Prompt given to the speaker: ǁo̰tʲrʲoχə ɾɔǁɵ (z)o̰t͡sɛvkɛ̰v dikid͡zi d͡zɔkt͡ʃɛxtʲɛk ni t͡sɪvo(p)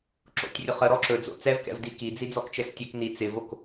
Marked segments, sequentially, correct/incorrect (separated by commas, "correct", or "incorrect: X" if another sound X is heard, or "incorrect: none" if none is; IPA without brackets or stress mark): incorrect: d͡z, incorrect: k